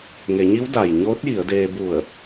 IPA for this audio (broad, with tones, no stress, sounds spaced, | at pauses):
ŋ e˩˧ ɲ i˧˥ w d a˩ j ɲ oː˧˥ t̚ j i˩˧ ə̯ d eː˧ b u˧˩ ə̯